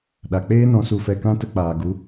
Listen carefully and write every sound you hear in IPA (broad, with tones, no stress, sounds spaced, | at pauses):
ɗ a˨ k͡p eː˦ n ɔ̃˧ s u˧ f ɛ˧ k ã˦ t ə˧ k͡p aː˨ ɡ u˨˦